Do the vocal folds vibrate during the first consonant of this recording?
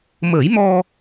yes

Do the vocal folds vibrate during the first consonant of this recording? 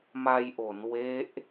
yes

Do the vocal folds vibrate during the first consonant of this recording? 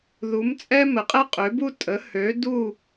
yes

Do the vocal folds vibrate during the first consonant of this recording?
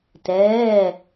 no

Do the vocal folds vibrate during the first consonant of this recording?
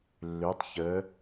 yes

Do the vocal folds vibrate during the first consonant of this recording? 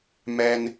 yes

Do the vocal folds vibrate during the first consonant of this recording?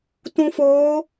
no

